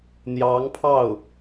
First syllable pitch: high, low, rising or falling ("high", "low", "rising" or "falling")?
rising